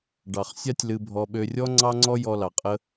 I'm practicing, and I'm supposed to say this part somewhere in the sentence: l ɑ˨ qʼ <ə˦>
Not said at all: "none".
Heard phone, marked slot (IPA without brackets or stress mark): ə˦